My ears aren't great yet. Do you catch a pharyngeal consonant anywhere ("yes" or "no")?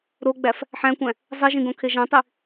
yes